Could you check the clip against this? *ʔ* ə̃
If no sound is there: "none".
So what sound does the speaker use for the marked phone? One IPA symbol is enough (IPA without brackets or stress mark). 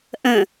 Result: ʔ